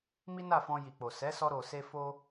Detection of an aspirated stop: absent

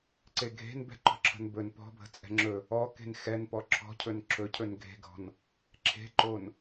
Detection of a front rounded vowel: absent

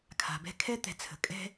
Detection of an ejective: present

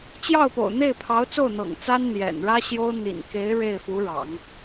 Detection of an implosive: absent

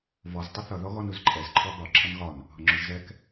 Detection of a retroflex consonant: absent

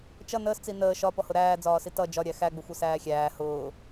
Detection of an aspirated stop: absent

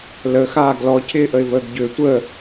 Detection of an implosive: absent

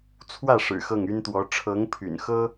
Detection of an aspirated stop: present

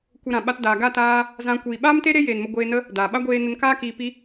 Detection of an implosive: present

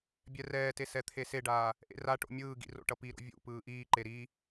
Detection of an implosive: absent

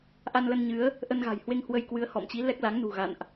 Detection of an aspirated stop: absent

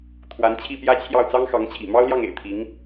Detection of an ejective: absent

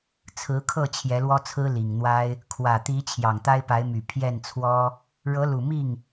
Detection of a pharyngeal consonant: absent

